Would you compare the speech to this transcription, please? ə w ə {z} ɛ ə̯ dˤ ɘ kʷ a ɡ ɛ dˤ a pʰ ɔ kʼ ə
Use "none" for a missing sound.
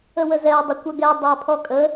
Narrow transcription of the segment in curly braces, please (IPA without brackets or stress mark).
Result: z